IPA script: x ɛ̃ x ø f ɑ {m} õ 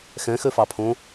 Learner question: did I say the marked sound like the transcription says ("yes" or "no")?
no